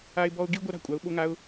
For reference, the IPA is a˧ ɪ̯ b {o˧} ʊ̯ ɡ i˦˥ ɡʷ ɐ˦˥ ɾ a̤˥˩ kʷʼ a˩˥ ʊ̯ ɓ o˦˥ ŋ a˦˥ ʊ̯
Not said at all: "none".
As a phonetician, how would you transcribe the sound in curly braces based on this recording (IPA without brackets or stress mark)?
ɔ˧